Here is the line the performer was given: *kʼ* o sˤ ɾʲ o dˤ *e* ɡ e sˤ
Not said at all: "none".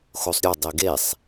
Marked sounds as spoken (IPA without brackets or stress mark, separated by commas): x, e